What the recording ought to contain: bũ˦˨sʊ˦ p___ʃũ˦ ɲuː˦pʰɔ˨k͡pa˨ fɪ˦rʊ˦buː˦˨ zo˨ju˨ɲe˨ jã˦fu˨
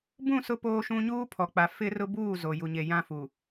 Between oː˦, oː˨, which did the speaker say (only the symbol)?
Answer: oː˦